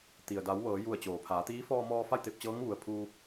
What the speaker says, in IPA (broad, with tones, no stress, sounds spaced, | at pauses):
t̪ i˩ ə̯ d a˩˧ w ʋ ɤː˩˧ j u˧˩ ə̯ t͡ɕ oː˩ pʰ aː˩˧ t̪ iː˧˥ f ɔː˧ m ɔː˧ f a˥˨ j t̪ e˧ p̚ t͡ɕ ɤː˧˥ ŋ ʋ u˩ ə̯ pʰ uː˧